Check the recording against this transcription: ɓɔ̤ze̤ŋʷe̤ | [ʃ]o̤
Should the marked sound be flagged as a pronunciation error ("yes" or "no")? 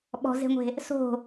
yes